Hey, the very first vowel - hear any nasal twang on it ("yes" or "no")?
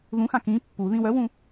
yes